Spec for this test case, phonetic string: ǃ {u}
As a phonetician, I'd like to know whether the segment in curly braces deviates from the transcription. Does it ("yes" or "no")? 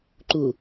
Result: no